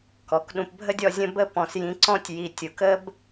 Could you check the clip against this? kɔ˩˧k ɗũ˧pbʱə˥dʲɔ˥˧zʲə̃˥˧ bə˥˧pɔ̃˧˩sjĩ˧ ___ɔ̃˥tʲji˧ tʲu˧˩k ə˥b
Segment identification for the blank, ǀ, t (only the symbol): ǀ